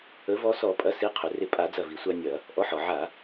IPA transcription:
ə˩˥ v ɔ˧ s ɔ˧˩˧ pʼ ɐ˩˥ s i˩˥ qʰ ʏ˩ r ɪ˧˩ pʼ a˧˩˧ d͡z ɐ˧˩ v i˩ sʷ a˧ nʲ ɐ˧˩˧ | ʔ ɔ˩˥ ħ ɔ˩ ʕ a˧˩˧

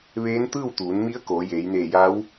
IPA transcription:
ʋ eː˧˥ n t̪ ɯː˥˨ w t̪ uː˩˧ n m i˧˥ ə̯ k oː˩˧ j eː˩˧ j n eː˧˩ j a˧˥ w

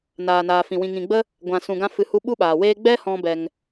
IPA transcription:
n aː˨ n aː˨ f ĩ˨ w ĩ˨ ŋ ĩ˨ ɡ͡b ə˦ | ɡʷ ã˨ s ũ˨ ɡ ã˧ f ɨ˧ h u˦ ɓ u˦ ɓ aː˨ w eː˦ ɡ͡b ɛ˦ h ɔ̃˦ b ɛ˧ ŋ

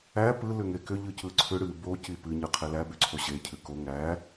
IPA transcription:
æ p ɯ l ʏ ŋ e k ʏ ʎ ɯ c ɯ ǀʰ ʏ ɽ ɨ b o c i p ɨ ɲ ɯ qʰ e l æ b ʏ ǀʰ o ɕ e cʰ ɨ k o ŋ æ

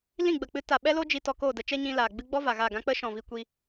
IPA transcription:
l ĩ˦˨ ɡ͡b ə˨ k͡p ɨ˧ t a˨ ɓ ɛ˦ l o˦ d͡ʒ i˧ t ɔ˧ k oː˦˨ d ə˧ t͡ʃ ɛ˦ ɲ ĩ˧ l aː˨ ɡ͡b ɨ˦ ɡ͡b ɔ˦ v a˨ ɣ a˦˨ ɡ ã˦ k͡p ə˦ ʃ ɔ̃˨ v i˧ kʷ i˧

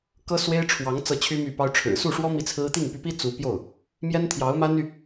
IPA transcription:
k ɤ˥ s w e˥ ɪ̯ ʈ͡ʂʰ w ɑ˧˥ ŋ t͡s ɤ˥˩ t͡ɕʰ y˥ m y˥˩ p ɑ˥ ʊ̯ ʈ͡ʂʰ ɻ̩˨˩ s u˥˩ ʂ w ɔ˥ m i˥˩ t͡sʰ ɹ̩˥ t̪ i˥˩ ŋ p y˧˥ p i˥ t͡s u˧˥ p j o˥˩ ʊ̯ | m j ɛ˥ n t̪ʰ j ɑ˧˥ ʊ̯ m a˥ n y˨

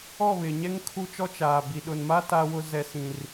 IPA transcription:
ɔ˦˨ β ɪ˨ ɲ ɛ˦ ŋ kʰ u˦ t͡ʃ ɔ˦ t͡ʃ aː˨ b i˨ ɗ ʊ˨ n m a˦ t a˦ w ʊ˦ z ɛ˦ s ĩ˦ r

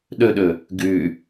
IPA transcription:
ɗ ɵ ɗ ɵ | ɡ ʉ

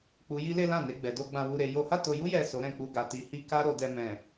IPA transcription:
k͡p u˧ j i˦ l e˦ l ã˦˨ n e˧ ɡ͡b ɛ˨ d o˧ ɡ͡b ã˧ w u˧ ɾ e˧ j o˧ h a˦ t o˧ j u˦ j ɛ˦˨ s o˨˦ ɾ ɛ̃˧ k͡p u˧ ɡ a˧ t i˧ h i˦ k a˦ ɾ o˧ d ɛ˧ m ɛ̃˨

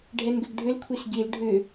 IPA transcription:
ɖʱ ɛ n ɡ ʏ ɡ ɖʱ ʏ l kʷʰ i s ɡ i l ɖʱ ʏ

